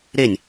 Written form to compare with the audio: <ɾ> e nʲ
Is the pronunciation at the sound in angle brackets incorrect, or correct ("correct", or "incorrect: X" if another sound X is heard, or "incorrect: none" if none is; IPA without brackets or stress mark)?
correct